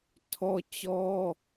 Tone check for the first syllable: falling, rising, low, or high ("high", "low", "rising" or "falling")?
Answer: high